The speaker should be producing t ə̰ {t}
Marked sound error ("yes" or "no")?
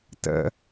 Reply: yes